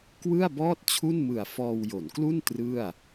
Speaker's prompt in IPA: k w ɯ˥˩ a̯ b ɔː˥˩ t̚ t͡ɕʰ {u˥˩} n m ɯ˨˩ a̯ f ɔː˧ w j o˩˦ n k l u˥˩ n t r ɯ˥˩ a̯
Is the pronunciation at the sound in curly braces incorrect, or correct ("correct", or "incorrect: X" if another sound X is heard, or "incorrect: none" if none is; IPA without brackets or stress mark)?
correct